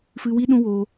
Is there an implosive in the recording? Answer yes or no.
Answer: yes